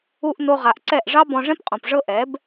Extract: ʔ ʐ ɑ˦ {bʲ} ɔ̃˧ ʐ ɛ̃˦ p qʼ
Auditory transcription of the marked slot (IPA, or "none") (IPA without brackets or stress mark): b